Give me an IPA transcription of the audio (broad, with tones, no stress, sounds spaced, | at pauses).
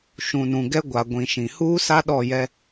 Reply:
ʃ ũ˨ n ũ˨ ɡ ɛ˦ ɡʷ a˨ ɡʷ ĩ˨ ʃ ĩ˨ h uː˦ s a˦ ɗ ɔ˦˨ j ɛ˦